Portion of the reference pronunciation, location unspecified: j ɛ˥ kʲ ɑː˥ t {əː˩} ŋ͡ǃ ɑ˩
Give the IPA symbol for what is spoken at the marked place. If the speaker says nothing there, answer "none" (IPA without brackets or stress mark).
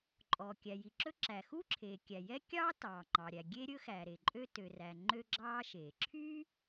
ɑː˩